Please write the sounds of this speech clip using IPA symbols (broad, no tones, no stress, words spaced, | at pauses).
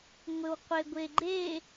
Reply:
ŋʷɘwqʷeɡʷeɡ͡ǃe